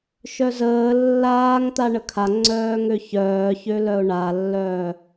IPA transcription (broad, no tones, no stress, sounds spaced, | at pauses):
ʃ œ z əː lː aː ŋ t̪ a ɳ ə kʰ a ŋ͡ǀ œː ŋ ø ç œː ç ø l œ ʊ̯ ɳ a lː œː